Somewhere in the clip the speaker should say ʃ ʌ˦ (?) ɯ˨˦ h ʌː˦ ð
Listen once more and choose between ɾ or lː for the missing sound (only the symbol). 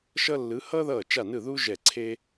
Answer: lː